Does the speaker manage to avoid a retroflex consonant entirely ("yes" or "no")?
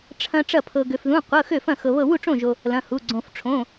no